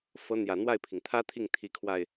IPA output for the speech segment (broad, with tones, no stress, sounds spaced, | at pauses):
f ɤ˧˥ n̪ j ä˨˩ n̪ w a˥˩ ɪ̯ pʰ i˩ ŋ t̪ʰ ä˥ t̪ʰ i˥˩ ŋ t̪ʰ i˧˥ kʰ w a˧ ɪ̯